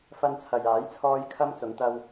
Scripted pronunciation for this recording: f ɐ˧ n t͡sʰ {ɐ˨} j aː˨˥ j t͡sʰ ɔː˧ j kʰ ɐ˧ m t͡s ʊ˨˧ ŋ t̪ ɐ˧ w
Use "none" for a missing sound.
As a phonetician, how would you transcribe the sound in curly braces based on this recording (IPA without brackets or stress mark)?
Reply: ɐ˨